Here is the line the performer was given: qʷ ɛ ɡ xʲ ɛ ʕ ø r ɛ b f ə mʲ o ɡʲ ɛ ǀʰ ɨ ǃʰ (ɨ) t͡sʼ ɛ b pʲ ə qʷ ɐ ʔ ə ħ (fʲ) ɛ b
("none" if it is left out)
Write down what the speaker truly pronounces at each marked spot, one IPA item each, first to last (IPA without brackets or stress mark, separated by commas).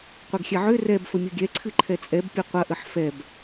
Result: ɛ, f